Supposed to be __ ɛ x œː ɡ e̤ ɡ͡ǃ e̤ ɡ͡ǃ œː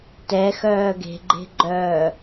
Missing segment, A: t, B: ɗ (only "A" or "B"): A